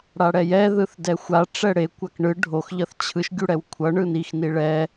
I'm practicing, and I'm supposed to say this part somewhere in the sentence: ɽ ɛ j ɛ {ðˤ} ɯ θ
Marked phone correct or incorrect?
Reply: incorrect